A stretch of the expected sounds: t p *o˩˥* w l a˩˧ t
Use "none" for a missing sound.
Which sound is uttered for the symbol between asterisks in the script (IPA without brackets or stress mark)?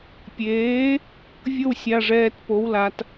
o˩˥